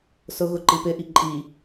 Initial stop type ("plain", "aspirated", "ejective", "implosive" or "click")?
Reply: click